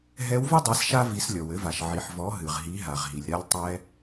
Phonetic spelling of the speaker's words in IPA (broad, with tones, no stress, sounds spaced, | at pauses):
ɦ ɛ˧˥ w v ɨ˥ dˤ ɛ˩˧ s ʃ a˧ v i˩˧ s lʲ ɔ˩ w ɘ˩˧ v a˩ ʃ ʕ i˩ ħ v ɔ˩˧ ɦ ɨ˩ ʁ ɦ i˩˧ ɦ a˩ ʁ ɦ i˩ lʲ ɾ a˧ lʲ tˤ ɛ˧